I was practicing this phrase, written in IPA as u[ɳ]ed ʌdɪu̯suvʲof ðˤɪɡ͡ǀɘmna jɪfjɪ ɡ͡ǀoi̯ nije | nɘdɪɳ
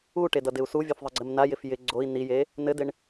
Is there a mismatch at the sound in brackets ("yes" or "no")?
yes